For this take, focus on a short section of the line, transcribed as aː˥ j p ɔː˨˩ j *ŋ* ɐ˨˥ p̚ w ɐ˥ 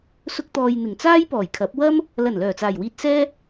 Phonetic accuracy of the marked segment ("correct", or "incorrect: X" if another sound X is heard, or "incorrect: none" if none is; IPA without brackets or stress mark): incorrect: kʰ